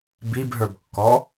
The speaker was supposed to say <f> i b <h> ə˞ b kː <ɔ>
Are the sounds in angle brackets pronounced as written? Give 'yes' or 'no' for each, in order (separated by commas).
no, no, yes